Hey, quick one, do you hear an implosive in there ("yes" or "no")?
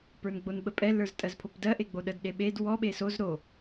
yes